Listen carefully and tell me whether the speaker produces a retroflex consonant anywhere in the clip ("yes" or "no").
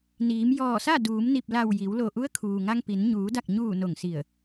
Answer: no